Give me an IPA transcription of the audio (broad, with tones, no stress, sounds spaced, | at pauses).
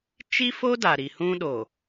t͡ʃ i˦ f o˦ d a˨ ɾ i˨ h ũ˦ ɗ o˨